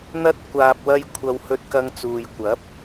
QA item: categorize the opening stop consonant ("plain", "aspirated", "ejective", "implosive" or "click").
plain